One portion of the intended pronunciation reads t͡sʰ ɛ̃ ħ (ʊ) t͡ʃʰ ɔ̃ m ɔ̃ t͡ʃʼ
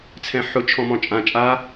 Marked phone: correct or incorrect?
correct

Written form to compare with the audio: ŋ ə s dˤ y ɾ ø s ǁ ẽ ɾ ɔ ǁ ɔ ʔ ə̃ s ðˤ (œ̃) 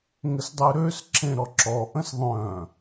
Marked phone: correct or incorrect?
correct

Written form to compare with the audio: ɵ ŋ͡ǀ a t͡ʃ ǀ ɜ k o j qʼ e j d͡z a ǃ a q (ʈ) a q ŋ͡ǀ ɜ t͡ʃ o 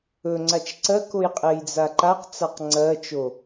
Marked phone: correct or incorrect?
incorrect: t͡s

